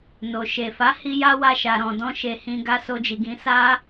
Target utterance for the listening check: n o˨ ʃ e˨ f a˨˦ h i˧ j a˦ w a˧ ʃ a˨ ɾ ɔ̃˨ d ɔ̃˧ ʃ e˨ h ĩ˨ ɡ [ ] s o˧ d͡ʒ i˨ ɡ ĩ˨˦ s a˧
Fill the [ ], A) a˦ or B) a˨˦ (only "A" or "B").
B